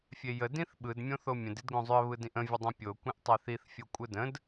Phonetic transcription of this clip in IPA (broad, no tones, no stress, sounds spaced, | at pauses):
fʲ e j ə d ĩ θ ɓ ɯ d mʲ õ θ o mʲ ə̃ d i d ɡ õ zˤ ʏ ə̯ β ɯ d ĩ ʔ ə̃ vʲ ə dˤ õ pʲ o kʷ ĩ ʔ tˤ e θ i θ fʲ o kʷʼ ɯ d ə̃ d